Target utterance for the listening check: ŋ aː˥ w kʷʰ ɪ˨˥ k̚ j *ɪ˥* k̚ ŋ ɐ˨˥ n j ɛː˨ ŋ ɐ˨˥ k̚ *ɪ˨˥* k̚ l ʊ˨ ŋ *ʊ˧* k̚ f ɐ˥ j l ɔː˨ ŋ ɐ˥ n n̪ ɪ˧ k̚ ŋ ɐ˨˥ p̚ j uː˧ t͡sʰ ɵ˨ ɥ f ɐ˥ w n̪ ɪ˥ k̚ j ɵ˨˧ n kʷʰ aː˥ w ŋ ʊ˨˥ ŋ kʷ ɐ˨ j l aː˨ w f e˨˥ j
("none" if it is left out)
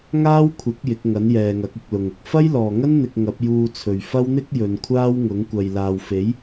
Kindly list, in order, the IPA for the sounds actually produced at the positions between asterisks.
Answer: ɪ˨˥, ɪ˧, ʊ˧

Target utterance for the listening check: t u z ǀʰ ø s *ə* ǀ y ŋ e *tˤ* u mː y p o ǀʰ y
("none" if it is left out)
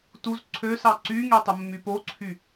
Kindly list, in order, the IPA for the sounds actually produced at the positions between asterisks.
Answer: ɑ, tˤ

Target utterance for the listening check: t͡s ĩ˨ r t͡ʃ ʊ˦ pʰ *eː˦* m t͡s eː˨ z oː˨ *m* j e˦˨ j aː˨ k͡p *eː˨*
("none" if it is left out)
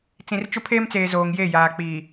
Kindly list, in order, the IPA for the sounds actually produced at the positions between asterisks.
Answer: eː˦, ŋ, iː˨

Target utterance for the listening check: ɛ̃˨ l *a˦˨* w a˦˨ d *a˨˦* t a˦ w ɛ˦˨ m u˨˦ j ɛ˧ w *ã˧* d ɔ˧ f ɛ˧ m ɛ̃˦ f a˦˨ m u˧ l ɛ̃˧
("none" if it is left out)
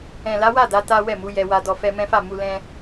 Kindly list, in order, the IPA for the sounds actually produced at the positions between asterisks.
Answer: a˨˦, a˨˦, a˧

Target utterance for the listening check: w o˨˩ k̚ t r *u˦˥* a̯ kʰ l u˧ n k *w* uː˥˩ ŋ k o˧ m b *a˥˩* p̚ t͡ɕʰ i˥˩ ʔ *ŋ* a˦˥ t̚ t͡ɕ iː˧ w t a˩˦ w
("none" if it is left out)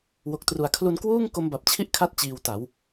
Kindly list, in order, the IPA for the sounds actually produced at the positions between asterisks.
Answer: u˨˩, w, a˨˩, kʰ

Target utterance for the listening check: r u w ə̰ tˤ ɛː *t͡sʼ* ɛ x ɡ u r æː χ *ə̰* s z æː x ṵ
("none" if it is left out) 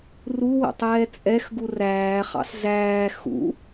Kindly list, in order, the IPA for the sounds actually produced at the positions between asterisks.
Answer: t͡sʼ, ɑ̰

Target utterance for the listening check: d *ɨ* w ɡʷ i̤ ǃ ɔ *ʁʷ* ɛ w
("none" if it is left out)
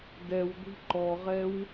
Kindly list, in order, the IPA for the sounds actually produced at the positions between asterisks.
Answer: ɛ, ʁ

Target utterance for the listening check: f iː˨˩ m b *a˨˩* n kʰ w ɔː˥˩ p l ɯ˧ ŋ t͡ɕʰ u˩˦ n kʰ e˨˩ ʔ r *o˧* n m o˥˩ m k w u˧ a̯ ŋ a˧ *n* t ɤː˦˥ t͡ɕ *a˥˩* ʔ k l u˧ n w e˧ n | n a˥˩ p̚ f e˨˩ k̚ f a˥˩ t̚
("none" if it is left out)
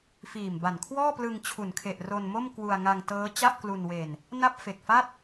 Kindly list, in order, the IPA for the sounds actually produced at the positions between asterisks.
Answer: a˨˩, o˧, ŋ, a˥˩

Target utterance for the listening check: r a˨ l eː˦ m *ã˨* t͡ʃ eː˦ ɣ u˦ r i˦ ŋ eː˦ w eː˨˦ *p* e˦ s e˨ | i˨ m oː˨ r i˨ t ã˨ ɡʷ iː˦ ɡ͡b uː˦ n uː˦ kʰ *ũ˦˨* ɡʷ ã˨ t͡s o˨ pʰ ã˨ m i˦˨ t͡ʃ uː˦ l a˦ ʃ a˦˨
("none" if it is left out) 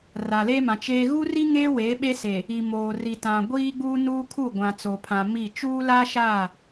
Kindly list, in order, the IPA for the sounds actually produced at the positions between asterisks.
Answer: ã˨, ɓ, u˦˨

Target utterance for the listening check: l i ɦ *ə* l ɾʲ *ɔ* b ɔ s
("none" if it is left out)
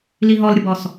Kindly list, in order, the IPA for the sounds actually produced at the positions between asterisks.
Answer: ɔ, ə

